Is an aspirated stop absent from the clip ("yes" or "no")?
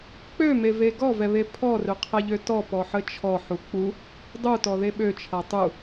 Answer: no